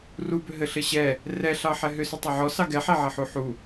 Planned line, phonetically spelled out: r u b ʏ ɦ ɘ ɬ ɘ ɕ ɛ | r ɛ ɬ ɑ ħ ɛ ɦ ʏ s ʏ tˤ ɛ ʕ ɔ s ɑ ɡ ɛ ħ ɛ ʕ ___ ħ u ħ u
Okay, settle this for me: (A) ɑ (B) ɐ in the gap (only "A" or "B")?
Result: B